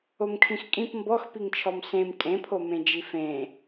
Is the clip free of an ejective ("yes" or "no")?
no